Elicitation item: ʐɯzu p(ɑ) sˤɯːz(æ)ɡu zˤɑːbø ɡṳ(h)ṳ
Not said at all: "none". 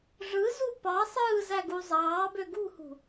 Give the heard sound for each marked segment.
ɑ, æ, h

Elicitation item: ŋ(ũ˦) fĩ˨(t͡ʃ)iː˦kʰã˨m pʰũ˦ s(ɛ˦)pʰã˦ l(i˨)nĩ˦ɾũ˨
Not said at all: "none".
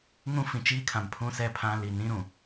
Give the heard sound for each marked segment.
ũ˦, t͡ʃ, ɛ˦, i˨

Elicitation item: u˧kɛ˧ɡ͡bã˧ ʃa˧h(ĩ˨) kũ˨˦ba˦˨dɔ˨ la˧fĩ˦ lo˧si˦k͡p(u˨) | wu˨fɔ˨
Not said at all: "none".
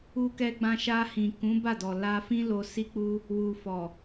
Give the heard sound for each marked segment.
ĩ˨, u˦

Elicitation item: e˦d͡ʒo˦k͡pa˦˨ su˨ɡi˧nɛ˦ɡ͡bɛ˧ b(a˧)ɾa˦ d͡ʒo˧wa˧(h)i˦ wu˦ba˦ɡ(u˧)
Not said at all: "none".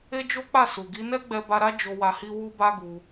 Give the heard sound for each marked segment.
a˧, h, u˧

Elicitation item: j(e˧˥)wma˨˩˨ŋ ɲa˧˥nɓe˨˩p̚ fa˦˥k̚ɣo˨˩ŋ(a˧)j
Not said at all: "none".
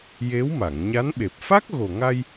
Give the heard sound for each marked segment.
e˧˥, a˧

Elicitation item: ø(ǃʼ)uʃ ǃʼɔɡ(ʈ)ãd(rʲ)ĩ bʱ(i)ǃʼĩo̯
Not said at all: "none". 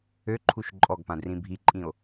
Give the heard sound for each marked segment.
ǃʰ, p, r, i

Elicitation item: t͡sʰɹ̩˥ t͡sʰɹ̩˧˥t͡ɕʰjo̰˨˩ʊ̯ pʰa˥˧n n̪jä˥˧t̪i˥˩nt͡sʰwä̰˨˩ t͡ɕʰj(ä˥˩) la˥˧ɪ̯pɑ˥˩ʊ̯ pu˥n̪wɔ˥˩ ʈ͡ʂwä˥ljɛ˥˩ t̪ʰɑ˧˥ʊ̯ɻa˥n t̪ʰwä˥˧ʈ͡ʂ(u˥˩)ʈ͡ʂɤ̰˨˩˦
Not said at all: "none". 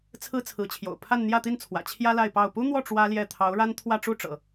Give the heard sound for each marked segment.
ä˥, u˥˩

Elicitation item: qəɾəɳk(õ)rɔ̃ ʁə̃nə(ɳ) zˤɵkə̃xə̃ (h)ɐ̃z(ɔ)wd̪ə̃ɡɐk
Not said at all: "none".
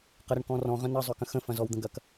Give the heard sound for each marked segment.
ɔ̃, none, f, ɔ

